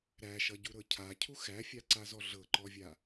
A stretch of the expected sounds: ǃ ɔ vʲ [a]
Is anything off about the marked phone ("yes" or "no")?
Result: no